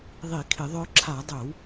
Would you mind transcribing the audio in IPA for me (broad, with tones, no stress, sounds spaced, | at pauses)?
ðˤ i˧˩˧ kʰ ɪ˧˩˧ ðˤ œ˧ ǁʰ a˧˩˧ dˤ œ˧˩˧ w